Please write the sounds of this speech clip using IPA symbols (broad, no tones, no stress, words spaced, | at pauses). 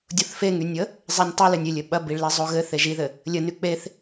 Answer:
dʲoθfeŋynʲə | zˤenʲtˤy lɘnʲɪlʲɘ ɓɐbiɭle zˤoɣɘ θeʒiðɘ | lʲəny k͡peθ